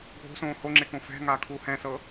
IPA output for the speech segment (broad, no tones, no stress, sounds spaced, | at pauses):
ɡʱ o̤ s õː h o ŋ͡ǁ e k õ f ɛ̤ ŋ aː kʰ uː h ɛ̃ s ɤ